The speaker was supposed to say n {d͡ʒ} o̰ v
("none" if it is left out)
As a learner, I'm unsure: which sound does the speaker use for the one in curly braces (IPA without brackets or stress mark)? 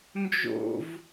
d͡ʒ